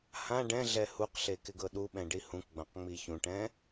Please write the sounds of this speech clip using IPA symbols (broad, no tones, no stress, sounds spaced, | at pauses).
h ã ɖ ɛ̃ ɮ ɛ h u q ɬ e k ɪ ɡ ɤ ɗ u ɓ ɛ̃ ɖ i h ũ k ɡ͡b ã q ŋ͡m i ç ũ ʈ ɛ̃